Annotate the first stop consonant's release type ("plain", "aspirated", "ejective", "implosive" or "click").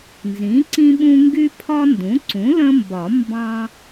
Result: click